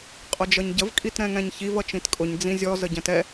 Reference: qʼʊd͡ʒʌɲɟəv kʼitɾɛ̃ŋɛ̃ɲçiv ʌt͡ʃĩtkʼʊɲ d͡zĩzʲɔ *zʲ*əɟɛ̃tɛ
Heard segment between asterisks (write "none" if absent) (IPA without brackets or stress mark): z